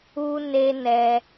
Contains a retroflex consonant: no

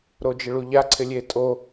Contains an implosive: no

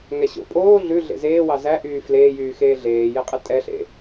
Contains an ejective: yes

